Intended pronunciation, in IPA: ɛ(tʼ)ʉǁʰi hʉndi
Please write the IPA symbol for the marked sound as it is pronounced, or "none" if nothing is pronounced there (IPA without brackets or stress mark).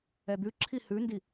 d̪